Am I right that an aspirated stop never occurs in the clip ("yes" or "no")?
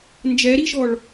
yes